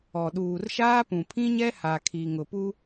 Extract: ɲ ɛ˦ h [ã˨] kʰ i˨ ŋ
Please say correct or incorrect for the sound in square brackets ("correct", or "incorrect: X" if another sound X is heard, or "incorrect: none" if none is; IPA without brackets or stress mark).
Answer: incorrect: a˨